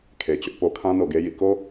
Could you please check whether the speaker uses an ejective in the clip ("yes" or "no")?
no